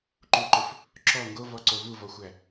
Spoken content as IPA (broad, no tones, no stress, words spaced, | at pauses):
ǃuǃɵf | ǁɔ ŋɡovɔǀo vuvɔxʷæ